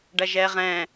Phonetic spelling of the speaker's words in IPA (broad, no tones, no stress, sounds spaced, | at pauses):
ɖ ɐ ʒ ɛː ʁ ɛ̃ː